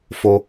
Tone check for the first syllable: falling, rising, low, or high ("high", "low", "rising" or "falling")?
low